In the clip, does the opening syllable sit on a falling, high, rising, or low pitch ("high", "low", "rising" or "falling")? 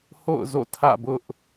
falling